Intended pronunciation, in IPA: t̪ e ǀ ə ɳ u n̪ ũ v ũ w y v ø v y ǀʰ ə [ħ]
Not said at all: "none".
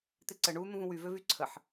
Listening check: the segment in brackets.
ħ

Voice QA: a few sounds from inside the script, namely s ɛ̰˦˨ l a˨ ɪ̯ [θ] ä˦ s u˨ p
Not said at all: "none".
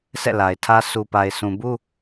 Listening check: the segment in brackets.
tʰ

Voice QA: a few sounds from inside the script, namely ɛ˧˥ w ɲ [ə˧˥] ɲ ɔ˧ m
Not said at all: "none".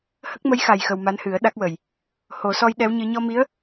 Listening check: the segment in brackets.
ɨ˧˥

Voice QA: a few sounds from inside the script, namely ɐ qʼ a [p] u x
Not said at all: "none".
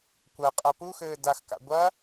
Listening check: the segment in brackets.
p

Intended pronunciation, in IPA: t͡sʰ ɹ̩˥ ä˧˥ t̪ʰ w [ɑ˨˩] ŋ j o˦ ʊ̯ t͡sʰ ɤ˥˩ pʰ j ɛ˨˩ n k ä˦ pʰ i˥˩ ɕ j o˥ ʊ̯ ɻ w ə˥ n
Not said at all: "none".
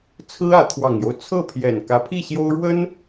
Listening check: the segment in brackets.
ɑ˨˩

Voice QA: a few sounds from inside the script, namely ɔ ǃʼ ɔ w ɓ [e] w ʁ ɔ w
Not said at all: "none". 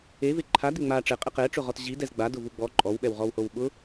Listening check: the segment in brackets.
ɛ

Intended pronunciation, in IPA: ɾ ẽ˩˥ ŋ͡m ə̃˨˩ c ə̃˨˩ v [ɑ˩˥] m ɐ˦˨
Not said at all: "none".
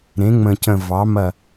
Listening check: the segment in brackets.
ɑ˩˥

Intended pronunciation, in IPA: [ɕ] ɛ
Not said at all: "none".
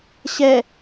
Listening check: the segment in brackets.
ɕ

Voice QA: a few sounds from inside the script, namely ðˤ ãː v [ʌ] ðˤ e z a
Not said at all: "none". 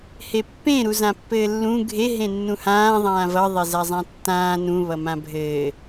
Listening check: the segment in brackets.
ʌ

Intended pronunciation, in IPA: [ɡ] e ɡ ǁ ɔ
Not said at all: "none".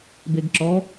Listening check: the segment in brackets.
b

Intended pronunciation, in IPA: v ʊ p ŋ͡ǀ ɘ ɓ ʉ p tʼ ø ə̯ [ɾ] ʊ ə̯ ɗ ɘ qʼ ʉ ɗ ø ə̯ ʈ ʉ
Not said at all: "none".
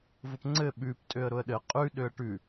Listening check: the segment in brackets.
ɾ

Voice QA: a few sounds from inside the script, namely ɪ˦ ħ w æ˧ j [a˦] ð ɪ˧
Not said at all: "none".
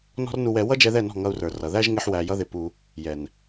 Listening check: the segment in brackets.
ʌ˦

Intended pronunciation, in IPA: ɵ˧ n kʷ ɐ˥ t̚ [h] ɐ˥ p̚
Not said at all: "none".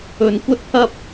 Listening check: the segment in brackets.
h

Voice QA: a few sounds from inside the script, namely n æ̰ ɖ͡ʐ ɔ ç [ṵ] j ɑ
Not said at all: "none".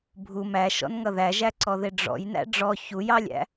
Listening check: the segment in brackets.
u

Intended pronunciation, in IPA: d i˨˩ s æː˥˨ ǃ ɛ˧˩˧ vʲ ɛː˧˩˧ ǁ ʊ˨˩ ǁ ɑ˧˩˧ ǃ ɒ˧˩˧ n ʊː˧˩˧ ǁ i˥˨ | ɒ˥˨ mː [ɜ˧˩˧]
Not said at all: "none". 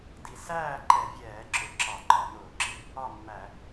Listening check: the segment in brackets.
æ˧˩˧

